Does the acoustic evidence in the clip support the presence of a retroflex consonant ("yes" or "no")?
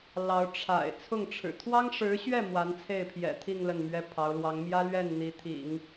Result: yes